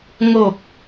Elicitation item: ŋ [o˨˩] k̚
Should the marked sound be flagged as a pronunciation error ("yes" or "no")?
no